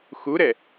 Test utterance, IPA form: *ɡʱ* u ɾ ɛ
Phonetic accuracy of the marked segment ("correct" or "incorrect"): incorrect